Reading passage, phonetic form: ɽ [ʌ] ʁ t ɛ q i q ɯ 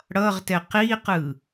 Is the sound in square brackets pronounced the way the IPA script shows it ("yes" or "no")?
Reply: yes